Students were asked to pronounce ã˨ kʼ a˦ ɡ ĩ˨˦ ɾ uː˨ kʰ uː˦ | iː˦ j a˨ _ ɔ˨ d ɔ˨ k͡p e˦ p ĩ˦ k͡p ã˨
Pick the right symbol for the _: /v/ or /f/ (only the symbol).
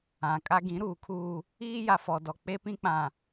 f